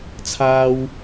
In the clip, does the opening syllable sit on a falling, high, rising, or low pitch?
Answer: high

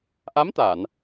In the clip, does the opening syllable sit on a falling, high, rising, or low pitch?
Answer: rising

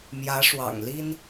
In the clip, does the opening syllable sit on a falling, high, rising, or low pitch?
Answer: rising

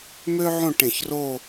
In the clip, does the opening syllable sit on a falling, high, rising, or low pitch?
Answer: high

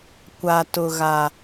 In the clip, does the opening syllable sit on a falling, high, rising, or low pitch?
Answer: low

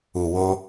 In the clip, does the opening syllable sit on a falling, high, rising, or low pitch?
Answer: low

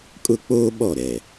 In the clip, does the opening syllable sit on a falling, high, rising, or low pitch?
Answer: high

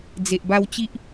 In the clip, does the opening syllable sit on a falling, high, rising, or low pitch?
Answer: low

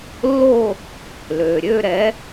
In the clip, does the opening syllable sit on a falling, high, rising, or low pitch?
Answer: falling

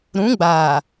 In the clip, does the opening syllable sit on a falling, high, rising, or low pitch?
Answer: rising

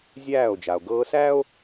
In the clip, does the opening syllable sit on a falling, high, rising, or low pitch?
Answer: falling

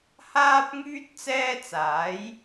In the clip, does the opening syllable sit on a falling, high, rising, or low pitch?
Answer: high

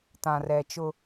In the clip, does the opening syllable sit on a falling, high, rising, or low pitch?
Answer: low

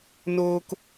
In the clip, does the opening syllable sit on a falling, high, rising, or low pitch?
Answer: high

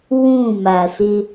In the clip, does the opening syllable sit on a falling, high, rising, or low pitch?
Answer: falling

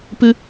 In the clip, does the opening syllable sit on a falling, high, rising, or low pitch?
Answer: high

